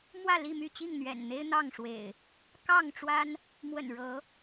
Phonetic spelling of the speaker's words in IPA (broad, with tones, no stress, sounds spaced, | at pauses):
m w ä˥˨ l i˥˨ m y˥˨ t͡ɕ i˥˨ ŋ n̪ ɥ ɛ̰˨˩ n n̪ e˦ ɪ̯ n̪ ɑ˥˨ ŋ ʂ w ḛ˨˩ ɪ̯ | k ɑ˥˨ ŋ ʈ͡ʂ w a˦ n | m w ə̰˨˩ n ɻ ɤ˨˦